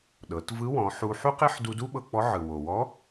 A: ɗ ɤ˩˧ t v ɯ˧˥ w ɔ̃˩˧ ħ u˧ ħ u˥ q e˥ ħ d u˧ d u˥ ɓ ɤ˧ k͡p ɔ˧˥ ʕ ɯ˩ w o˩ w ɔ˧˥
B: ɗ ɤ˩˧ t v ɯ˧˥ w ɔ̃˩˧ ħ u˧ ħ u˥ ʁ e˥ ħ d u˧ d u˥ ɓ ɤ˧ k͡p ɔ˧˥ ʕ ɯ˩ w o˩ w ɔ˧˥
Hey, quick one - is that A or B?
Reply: A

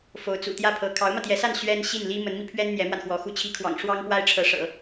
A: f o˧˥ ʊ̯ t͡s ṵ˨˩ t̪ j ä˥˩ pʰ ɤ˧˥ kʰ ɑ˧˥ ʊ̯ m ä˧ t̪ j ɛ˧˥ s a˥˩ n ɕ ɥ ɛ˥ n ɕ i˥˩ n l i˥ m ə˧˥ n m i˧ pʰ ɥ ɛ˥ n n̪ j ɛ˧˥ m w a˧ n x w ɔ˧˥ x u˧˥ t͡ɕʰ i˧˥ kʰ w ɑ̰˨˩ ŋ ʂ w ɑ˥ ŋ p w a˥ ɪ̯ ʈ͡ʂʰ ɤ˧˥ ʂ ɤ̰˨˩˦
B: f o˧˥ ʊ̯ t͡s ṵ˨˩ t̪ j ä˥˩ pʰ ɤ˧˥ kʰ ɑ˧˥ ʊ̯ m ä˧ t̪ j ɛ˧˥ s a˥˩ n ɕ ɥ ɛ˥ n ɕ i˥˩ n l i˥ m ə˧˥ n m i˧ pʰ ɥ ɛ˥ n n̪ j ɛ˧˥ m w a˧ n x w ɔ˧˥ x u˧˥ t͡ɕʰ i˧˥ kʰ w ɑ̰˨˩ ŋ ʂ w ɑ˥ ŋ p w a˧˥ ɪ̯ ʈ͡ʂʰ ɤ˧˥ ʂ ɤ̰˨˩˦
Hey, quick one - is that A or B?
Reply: A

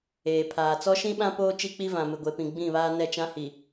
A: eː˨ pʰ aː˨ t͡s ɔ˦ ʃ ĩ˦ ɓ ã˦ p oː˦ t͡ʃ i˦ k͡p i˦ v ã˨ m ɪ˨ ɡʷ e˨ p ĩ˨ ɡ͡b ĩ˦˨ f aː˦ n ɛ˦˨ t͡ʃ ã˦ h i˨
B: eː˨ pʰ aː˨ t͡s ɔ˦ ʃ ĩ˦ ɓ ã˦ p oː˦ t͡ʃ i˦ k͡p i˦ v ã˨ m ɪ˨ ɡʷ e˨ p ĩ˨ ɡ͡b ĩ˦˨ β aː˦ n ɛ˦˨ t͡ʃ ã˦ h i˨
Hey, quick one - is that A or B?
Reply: B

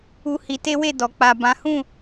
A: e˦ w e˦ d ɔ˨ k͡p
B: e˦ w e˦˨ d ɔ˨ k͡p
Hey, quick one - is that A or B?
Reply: B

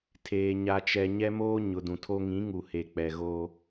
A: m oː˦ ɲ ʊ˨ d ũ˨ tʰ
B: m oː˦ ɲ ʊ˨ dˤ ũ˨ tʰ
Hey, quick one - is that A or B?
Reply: A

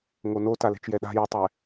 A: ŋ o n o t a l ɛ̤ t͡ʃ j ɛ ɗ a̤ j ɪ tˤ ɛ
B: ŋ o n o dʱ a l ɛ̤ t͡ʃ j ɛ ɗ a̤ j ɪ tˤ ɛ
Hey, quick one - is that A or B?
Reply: A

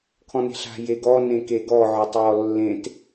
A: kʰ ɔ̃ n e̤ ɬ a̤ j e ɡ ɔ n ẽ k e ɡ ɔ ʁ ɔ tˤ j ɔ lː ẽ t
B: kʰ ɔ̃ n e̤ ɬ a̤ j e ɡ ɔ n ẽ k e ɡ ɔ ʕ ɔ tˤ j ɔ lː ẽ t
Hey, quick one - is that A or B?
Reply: B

